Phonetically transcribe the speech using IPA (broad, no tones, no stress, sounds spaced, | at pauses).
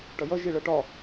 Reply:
ʈ ʌ j ʌ ʒ i ɭ ʌ ʈ ɒ